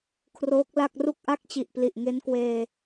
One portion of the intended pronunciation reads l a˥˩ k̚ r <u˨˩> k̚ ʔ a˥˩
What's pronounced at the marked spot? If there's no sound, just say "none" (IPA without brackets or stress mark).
u˥˩